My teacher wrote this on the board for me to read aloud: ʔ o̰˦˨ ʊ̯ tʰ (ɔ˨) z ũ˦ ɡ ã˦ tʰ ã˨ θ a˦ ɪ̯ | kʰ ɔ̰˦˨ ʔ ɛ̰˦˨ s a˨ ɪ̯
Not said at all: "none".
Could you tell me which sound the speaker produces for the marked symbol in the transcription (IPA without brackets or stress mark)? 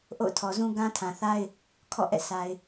ɔ˨